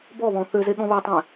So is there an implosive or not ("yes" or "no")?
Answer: yes